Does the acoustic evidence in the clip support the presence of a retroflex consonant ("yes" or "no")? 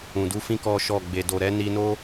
no